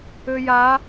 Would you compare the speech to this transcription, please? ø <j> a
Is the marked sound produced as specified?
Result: yes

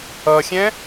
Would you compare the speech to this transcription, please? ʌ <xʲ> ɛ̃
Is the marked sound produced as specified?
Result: yes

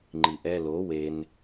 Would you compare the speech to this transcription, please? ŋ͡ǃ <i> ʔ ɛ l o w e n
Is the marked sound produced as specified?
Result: yes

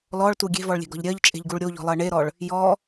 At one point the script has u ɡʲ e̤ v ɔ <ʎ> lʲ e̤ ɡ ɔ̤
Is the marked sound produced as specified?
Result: no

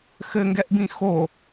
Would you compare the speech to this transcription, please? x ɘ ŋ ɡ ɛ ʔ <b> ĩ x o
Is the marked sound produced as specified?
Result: yes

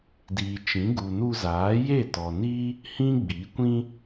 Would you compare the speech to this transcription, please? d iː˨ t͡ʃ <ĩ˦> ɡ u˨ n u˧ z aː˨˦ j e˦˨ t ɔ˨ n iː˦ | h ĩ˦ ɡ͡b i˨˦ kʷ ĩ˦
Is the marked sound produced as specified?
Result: no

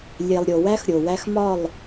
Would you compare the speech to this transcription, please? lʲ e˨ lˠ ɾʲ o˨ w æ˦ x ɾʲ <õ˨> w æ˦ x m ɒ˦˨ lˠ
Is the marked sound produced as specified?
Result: no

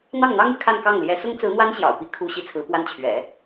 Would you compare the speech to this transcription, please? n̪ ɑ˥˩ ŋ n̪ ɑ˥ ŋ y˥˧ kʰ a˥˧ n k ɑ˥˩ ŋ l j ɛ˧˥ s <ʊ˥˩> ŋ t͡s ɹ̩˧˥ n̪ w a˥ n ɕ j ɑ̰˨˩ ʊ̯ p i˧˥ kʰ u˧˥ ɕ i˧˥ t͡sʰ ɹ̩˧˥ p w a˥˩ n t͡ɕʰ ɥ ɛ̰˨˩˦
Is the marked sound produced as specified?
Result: no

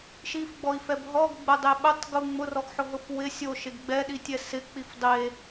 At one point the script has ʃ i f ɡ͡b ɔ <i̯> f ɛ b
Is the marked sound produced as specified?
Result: yes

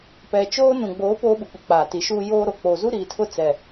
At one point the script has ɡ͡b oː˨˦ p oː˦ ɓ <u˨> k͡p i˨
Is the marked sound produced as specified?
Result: yes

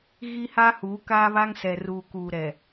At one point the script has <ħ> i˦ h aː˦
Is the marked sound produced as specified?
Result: no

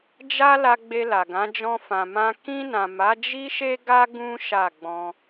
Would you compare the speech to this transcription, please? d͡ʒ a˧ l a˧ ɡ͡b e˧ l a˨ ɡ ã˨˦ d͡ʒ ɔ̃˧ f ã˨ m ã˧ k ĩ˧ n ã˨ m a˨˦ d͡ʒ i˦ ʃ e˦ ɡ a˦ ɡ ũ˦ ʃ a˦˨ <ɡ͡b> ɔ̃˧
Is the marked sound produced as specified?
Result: yes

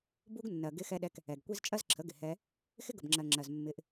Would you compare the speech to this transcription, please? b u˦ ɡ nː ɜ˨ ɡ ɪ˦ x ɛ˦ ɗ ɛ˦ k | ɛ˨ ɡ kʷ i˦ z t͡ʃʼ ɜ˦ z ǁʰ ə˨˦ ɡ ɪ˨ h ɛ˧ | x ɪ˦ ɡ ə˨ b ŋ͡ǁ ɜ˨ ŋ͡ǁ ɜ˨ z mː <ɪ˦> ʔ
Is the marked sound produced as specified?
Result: no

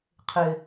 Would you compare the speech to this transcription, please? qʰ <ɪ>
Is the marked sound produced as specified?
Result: yes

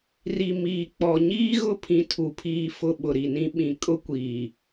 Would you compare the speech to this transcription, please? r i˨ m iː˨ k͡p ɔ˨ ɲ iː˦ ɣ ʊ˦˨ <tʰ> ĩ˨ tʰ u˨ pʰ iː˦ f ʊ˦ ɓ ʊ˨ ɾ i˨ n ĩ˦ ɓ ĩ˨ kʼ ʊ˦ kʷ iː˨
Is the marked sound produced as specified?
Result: no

